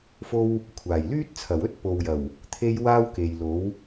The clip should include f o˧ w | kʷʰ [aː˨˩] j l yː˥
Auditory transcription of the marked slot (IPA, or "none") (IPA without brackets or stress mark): aː˨˩